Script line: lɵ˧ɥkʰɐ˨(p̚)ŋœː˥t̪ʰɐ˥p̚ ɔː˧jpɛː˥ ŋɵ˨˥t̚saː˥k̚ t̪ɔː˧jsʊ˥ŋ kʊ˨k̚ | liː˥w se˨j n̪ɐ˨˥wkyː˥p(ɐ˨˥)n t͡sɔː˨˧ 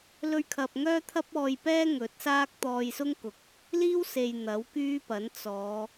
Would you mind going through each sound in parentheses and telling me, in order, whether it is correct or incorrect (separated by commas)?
correct, correct